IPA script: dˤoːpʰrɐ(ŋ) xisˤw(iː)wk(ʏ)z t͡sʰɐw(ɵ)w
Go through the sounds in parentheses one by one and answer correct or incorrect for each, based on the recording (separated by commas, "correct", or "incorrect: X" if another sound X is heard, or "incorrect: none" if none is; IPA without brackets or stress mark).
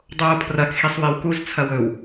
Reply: incorrect: k, incorrect: i, incorrect: u, correct